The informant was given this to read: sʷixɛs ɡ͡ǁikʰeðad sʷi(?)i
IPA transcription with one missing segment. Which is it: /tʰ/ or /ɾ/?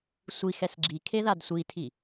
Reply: tʰ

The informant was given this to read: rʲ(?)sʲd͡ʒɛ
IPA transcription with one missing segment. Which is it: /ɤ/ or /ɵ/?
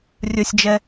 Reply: ɵ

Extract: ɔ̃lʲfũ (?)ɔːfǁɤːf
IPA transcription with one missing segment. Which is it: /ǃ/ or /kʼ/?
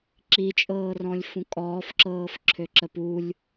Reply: kʼ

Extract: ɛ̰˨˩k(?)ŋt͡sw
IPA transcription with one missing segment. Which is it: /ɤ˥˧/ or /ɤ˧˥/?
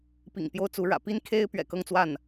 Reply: ɤ˥˧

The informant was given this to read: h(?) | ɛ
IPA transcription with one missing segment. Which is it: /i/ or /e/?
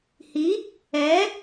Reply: i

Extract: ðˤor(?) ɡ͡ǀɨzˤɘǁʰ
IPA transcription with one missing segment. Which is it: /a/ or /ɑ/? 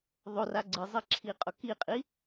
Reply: a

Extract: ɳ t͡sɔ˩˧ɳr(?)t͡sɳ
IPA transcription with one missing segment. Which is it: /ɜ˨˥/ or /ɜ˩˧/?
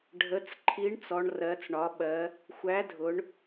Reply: ɜ˩˧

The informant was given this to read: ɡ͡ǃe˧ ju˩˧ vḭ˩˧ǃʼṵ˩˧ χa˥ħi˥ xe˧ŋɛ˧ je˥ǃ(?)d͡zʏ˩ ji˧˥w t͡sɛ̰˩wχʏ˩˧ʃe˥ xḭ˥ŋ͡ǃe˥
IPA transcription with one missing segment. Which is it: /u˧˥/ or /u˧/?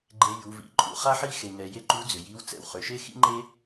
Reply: u˧˥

